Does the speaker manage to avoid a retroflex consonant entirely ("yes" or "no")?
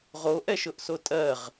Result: yes